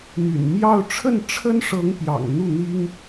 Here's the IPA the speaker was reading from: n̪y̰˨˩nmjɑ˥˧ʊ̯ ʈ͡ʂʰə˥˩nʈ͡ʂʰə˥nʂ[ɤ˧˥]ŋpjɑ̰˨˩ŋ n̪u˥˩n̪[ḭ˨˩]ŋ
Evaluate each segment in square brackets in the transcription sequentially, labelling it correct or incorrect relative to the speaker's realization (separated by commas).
correct, incorrect